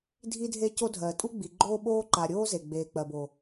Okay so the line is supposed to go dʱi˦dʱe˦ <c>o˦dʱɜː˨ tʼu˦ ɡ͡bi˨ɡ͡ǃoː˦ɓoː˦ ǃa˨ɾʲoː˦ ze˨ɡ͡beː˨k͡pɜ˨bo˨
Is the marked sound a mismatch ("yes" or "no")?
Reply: no